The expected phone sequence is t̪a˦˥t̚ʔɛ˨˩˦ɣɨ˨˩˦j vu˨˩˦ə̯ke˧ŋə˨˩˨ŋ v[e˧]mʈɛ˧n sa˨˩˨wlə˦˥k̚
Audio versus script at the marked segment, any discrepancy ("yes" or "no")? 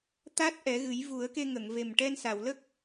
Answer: yes